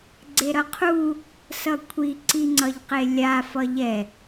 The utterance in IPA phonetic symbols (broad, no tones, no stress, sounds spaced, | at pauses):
ɡ͡ǀ e ɾ ʌ qʰ u | s ʌ kʷʰ i ǀ i ŋ͡ǀ ʌ ʎ q e lʲ a f ʌ ʎ ɛ